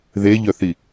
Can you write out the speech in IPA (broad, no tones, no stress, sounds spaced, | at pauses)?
ð e ʎ œ θ i